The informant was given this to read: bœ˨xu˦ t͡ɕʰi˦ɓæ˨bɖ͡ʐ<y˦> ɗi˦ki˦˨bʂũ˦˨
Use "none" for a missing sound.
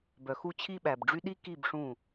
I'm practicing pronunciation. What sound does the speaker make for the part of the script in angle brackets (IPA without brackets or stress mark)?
y˦